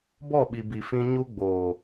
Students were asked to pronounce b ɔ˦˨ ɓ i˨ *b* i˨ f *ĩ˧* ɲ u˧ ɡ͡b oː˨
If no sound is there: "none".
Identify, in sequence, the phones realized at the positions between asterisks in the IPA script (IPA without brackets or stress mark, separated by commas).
b, ĩ˧